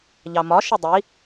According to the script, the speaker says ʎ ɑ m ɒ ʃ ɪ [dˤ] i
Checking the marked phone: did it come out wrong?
no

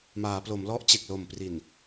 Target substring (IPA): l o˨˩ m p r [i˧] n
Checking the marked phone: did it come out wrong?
yes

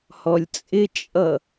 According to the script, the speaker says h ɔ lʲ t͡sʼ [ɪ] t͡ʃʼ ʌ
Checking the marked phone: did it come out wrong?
no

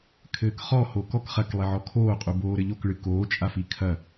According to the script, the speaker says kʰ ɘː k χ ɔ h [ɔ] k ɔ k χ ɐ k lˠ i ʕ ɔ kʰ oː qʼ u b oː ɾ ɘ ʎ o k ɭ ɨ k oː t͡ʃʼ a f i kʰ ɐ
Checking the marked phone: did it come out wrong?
yes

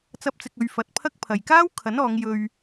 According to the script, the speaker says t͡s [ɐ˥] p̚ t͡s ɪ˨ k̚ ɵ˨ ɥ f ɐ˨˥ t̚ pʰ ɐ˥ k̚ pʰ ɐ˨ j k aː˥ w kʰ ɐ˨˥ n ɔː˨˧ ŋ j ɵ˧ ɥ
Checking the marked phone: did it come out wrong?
yes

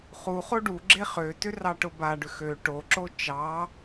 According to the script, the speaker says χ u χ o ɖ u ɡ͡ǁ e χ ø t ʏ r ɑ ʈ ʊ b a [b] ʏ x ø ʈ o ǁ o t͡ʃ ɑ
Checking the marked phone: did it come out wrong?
yes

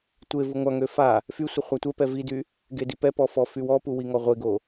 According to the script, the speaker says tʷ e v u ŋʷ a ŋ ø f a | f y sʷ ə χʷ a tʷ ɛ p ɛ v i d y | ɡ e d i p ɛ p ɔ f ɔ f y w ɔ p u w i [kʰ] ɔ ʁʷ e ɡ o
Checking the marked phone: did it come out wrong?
yes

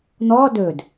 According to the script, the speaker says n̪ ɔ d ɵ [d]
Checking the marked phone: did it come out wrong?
no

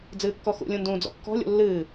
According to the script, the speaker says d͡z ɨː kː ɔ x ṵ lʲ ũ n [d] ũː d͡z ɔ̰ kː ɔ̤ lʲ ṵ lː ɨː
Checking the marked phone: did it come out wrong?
no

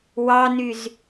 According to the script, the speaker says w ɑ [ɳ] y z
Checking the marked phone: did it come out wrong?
yes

